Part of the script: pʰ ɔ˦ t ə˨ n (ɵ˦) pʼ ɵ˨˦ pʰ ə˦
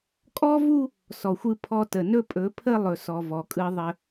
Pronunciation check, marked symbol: correct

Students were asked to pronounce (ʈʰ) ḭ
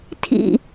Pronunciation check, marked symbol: incorrect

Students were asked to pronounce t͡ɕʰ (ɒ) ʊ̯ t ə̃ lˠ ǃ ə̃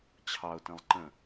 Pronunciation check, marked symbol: incorrect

